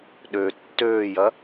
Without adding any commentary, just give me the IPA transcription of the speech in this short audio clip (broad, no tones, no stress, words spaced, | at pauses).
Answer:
ɗø tːøːjɐ